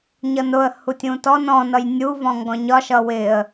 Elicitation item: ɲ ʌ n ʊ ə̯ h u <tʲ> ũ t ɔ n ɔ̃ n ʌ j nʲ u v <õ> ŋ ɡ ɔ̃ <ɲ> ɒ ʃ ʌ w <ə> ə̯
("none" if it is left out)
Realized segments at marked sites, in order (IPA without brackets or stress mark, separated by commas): tʲ, ɔ̃, ɲ, ɪ